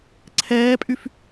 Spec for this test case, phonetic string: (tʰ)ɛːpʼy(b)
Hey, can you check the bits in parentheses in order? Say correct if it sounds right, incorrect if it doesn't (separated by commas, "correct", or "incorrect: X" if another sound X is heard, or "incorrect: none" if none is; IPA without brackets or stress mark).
incorrect: ǀʰ, incorrect: f